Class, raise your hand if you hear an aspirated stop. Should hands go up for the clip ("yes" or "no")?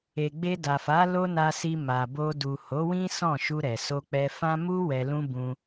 no